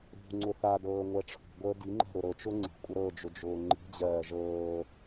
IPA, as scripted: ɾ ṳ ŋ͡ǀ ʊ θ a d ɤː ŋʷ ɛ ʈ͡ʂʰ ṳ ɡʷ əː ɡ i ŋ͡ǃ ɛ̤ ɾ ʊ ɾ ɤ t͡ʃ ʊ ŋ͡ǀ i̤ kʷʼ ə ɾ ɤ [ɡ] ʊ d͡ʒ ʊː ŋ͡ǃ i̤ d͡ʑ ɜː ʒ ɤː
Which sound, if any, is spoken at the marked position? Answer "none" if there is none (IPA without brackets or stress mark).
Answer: d͡ʒ